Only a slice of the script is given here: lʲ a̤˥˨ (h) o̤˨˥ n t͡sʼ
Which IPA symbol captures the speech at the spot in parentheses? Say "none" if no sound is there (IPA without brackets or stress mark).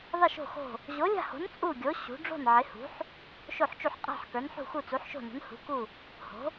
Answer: h